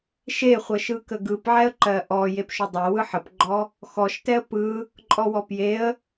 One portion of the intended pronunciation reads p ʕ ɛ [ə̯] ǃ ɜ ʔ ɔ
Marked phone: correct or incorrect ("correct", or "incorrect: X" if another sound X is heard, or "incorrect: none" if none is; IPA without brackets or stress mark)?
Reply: correct